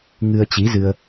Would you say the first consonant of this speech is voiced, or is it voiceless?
voiced